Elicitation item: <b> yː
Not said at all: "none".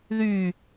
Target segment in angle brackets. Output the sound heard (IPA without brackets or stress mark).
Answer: ð